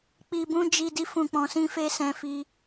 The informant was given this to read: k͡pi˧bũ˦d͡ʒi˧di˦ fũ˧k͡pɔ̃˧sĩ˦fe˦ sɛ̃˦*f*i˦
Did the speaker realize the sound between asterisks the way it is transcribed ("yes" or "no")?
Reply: yes